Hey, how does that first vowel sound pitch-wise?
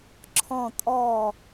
low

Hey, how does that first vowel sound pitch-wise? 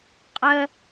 high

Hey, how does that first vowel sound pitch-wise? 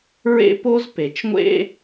high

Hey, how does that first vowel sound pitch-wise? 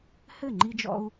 falling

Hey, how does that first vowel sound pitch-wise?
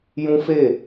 high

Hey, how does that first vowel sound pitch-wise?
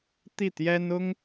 falling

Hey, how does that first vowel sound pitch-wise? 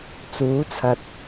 rising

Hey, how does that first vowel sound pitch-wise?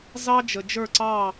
high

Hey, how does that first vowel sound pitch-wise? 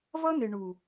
high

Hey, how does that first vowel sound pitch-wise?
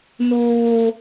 high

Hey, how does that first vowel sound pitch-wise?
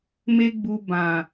high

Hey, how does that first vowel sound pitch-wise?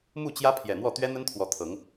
falling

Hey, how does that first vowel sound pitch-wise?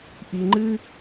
low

